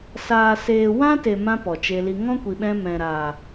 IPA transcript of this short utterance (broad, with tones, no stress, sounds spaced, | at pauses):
s aː˨ s eː˨ w ã˦ t e˨ m ã˦ p ɔ˨ t͡ʃ e˧ l i˧ ŋ ɔ̃˦ kʷ i˨ ɓ ɛ̃˧ m ɛ̃˨ ɾ aː˨